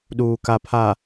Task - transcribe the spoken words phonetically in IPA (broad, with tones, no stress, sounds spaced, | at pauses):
ɗ uː˨ k a˨ pʰ a˨